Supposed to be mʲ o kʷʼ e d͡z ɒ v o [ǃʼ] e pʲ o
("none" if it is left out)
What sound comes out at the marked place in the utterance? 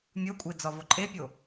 ǃʼ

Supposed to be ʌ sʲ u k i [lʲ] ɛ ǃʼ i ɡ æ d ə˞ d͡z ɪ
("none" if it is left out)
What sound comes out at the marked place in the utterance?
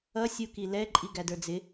l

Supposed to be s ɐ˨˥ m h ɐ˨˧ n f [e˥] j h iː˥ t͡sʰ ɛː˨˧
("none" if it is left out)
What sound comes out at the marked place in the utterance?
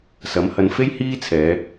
e˥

